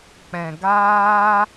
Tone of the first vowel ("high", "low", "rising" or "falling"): low